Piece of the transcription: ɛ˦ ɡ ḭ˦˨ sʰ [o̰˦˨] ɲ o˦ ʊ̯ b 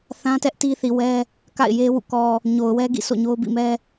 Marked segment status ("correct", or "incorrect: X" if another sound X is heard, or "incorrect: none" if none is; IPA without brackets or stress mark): correct